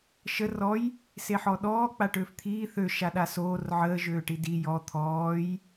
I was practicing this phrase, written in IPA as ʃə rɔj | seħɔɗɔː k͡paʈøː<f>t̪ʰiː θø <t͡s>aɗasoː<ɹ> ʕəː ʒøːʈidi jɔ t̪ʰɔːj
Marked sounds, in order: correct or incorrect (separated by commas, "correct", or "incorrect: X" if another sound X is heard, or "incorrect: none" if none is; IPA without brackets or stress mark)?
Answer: correct, incorrect: ʃ, incorrect: r